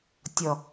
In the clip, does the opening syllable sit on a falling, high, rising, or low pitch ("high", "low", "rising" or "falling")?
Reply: low